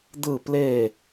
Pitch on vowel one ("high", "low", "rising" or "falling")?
falling